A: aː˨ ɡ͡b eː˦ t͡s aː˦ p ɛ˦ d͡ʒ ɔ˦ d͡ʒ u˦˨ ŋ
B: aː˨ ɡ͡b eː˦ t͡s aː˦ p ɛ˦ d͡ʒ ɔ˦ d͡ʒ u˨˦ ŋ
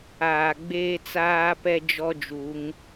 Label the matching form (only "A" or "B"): B